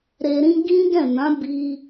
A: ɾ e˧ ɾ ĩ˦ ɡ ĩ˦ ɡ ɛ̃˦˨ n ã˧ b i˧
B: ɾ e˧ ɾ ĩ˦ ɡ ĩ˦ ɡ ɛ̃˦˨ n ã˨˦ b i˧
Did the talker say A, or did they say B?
B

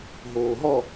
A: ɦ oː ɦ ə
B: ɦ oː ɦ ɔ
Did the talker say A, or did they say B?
B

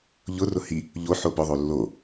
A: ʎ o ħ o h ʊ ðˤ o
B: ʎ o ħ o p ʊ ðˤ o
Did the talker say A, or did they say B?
B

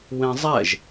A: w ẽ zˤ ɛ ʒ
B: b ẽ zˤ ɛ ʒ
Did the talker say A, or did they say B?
A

